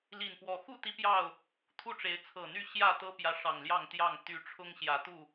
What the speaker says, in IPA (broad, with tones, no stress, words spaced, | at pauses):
li˨˩npwɔ˨˦ xu˥˨ t̪i˦pjɑ˥˨ʊ̯ | t̪ʰu˥˨ ʈ͡ʂe˨˦ɪ̯t͡sʰɤ˨˩n̪y˥˨ ɕjä˥˨ t̪ɤ˦pjä˨˦ ʂɑ˨˩ŋljɑ˥˨ŋt̪jɑ˥˨ŋ t̪y˦ ʈ͡ʂʰʊ˦ŋɕjä˨˦t̪u˥˨